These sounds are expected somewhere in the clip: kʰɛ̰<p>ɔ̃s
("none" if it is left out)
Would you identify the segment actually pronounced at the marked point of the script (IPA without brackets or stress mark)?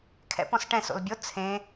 p